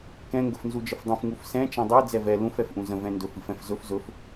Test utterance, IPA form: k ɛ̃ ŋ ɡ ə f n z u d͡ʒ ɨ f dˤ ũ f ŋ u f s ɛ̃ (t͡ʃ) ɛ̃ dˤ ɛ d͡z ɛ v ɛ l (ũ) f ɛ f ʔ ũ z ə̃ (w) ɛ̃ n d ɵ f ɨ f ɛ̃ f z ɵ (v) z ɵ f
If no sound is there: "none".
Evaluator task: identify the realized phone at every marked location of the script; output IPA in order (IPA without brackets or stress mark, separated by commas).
t͡ʃ, ũ, v, f